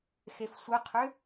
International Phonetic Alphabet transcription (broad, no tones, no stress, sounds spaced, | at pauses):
x e f sʷ ə qʰ ʏ